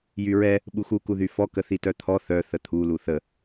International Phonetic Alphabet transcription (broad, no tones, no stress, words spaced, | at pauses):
jyɹɛ | ɓuxu kuðyfɔ kəθitœt̪ʰɔ θœ θət̪ʰu luθə